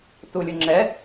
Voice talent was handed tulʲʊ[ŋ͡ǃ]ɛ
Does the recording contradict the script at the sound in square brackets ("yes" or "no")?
yes